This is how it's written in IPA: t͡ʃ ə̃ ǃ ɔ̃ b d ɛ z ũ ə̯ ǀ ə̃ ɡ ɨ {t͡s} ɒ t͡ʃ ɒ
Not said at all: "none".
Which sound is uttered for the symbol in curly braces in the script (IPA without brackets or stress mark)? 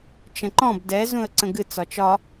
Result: t͡s